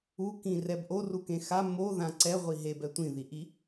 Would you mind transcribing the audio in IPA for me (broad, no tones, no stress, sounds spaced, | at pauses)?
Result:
u k ĩ r ɛ b ʔ o r u k ẽ x a m o ð ã ǀ ɛ ʁʷ i ɦ e b ɛ tʷ ĩ ð i ʔ i